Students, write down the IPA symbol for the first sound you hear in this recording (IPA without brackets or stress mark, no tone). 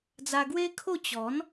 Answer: d͡z